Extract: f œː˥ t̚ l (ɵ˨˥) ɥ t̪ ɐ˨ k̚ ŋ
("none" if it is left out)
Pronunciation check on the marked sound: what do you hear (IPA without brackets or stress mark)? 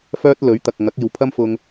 ɵ˨˥